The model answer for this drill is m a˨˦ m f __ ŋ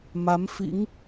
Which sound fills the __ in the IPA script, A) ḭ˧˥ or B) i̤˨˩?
A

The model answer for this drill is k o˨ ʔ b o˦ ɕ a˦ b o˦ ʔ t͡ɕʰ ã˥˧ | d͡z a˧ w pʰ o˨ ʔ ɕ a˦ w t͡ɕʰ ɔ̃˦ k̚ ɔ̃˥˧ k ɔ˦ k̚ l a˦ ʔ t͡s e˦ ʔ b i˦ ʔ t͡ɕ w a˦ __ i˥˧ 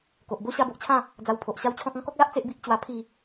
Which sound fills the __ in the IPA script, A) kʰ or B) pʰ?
B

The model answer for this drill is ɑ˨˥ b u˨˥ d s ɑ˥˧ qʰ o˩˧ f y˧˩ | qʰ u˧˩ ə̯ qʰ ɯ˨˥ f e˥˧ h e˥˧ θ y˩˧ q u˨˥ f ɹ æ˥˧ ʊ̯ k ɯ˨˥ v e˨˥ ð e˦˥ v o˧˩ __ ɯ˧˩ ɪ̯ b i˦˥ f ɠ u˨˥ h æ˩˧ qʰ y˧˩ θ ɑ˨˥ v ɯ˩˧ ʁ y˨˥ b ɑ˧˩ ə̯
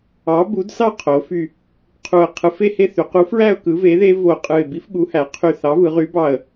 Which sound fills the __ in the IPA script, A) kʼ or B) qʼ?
B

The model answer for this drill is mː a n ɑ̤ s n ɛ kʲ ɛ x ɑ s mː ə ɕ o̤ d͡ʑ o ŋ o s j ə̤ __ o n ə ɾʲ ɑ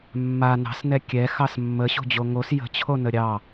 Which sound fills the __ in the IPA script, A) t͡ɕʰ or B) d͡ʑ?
A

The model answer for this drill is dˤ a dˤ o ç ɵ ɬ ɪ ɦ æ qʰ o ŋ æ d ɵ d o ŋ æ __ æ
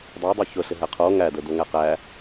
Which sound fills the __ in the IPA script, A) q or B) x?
A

